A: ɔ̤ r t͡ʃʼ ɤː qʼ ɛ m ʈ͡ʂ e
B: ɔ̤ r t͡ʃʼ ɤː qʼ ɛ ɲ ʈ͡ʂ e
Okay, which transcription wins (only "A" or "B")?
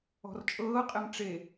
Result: A